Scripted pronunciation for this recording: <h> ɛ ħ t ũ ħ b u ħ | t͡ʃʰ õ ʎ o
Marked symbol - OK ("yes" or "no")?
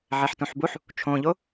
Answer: no